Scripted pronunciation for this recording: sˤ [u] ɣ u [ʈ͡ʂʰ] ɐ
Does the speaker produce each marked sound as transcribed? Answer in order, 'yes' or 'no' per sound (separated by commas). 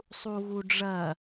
yes, no